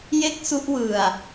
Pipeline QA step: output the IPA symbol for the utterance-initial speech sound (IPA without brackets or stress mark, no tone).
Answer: j